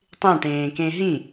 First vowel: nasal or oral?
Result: nasal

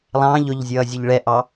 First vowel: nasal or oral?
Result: nasal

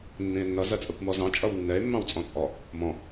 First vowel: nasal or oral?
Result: nasal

